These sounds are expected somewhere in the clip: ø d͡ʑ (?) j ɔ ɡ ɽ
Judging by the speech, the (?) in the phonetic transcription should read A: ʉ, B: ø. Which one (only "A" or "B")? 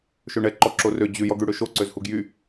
A